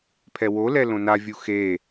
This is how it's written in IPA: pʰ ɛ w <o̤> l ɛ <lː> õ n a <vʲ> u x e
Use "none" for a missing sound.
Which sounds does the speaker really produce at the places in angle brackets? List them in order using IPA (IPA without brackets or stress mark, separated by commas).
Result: o, l, vʲ